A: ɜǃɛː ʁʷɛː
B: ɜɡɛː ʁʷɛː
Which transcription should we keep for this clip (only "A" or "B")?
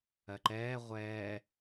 A